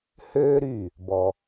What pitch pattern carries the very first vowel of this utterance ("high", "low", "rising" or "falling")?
high